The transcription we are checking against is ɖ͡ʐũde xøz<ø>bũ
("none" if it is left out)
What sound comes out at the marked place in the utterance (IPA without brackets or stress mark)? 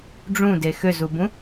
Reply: u